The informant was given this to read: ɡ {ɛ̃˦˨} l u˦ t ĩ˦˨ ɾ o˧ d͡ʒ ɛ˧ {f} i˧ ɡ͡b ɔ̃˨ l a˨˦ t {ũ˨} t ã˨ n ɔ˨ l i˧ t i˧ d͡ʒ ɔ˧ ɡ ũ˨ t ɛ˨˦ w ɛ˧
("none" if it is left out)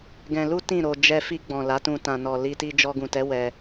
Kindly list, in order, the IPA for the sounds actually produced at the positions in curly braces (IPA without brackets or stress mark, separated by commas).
ɛ̃˧, f, ũ˧